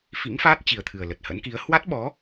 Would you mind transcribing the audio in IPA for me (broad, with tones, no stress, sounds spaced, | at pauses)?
f ḭ˧˥ ŋ f aː˦˥ t̚ t͡ɕ i˨˩ ə̯ t̪ʰ ɨ˨˩ ə̯ l ə˨˩ t̚ h ə̰˧˥ n k i˨˦ ə̯ h w a˦˥ t̚ ɓ ɔ˨˦